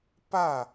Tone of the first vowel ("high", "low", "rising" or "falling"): falling